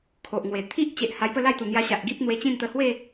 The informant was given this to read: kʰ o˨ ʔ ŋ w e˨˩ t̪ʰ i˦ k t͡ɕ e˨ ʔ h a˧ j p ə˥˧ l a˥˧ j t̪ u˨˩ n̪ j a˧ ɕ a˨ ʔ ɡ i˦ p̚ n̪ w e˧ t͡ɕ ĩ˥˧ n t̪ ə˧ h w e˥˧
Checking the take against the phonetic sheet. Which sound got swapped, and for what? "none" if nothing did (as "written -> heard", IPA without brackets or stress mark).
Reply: k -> ʔ